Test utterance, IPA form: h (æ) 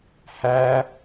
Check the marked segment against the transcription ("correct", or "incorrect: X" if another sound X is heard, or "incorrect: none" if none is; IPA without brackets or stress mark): correct